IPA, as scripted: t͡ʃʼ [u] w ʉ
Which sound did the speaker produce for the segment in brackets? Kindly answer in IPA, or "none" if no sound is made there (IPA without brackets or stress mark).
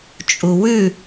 u